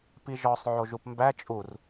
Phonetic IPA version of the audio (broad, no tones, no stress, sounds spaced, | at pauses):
p i ʒ ɒ sˤ ʕ o ʒ u p m b æ t͡ʃʼ u r